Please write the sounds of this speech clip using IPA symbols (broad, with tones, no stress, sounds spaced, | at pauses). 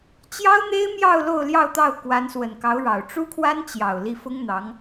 t͡ɕ j ɑ˥ ʊ̯ n̪ e˥ ɪ̯ m j ɑ˥˧ ʊ̯ l o˥˧ ʊ̯ l j ɑ˥˧ ʊ̯ t̪ ɑ˥˩ ʊ̯ k w a˧˥ n s w ə˨˩ n k ɑ˧˥ ʊ̯ ɻ ɑ˨˩ ʊ̯ ʈ͡ʂ u˥ kʰ w a˥ n t͡ɕ j ɑ˨˩ ʊ̯ l i˥˩ f ʊ˥ ŋ n̪ ɑ˧˥ ŋ